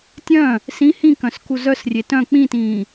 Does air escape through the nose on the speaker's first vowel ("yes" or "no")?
yes